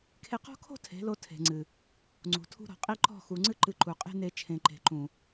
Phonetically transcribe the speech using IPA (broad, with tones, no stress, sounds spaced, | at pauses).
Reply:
kʰ e˧ q ɔ̤˦ kʰ o̤˦ tʰ e̤˨˦ l o˧ tʰ e̤˨ ŋ͡ǀ ɨ˨ | ŋ͡ǀ ṳ˨ tʰ ṳ˧ ɾ ɔ̤˨ qʼ i˧ ǃ ɔ̤˦˨ x u˨ ŋ͡ǀ ɨ˦ ǃ ɨ˧ ǃ u˨ qʼ e̤˦ n e˧ t͡ʃʰ ẽ˨ ǃ e̤˨ ǃ ũ˨